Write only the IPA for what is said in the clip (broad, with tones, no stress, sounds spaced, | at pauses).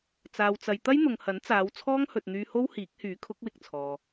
t͡s aː˨ w t͡s ɐ˨ j t̪ ɐ˥ j n̪ ʊ˨ ŋ h ɐ˨˥ n t͡s aː˨˧ w t͡sʰ ɔː˥ ŋ h ɵ˨ t̚ n̪ yː˧ h o˥ w h iː˨˥ k̚ h yː˨˥ kʰ ʊ˨˥ k̚ w ɪ˨˥ k̚ t͡sʰ ɔː˨